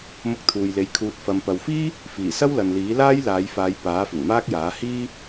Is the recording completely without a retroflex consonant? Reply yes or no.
yes